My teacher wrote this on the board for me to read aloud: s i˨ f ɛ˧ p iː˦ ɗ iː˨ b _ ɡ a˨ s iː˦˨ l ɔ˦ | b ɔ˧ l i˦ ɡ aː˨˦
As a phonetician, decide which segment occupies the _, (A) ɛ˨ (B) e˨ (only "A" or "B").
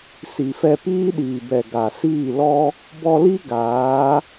A